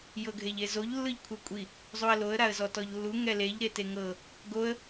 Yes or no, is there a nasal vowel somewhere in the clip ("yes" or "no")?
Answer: no